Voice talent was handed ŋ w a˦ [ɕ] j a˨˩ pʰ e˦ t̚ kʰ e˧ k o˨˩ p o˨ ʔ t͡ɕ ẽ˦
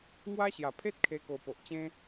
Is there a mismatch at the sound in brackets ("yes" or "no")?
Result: no